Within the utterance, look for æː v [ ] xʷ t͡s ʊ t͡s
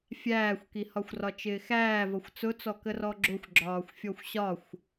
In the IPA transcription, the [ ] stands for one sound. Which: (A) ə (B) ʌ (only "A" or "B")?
B